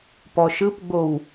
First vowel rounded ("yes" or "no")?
yes